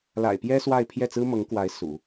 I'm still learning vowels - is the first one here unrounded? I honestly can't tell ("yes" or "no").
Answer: yes